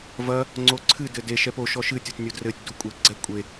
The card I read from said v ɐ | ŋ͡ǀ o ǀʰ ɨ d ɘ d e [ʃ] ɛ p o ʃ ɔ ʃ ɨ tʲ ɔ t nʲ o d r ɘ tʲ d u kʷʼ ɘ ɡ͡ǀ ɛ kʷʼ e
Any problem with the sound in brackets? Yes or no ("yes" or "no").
no